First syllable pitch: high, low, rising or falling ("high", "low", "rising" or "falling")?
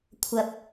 rising